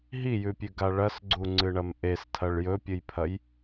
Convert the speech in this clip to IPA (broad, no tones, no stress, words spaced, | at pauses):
ɦijʉpʲʉɡa ɭɐsɡ͡ǀuŋ͡ǀɨɳɐm ʔestʰɐɭ jɵpʲɨjpʰɐj